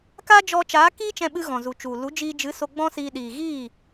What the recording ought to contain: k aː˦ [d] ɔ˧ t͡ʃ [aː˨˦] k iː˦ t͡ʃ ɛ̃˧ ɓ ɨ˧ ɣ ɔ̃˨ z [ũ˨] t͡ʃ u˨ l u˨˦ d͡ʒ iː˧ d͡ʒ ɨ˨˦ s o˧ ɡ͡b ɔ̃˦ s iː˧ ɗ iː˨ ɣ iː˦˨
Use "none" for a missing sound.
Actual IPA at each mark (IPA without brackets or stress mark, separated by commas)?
d͡ʒ, aː˨˦, u˨